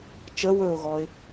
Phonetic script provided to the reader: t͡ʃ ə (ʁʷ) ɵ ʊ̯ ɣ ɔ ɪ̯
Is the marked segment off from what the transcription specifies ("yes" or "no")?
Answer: yes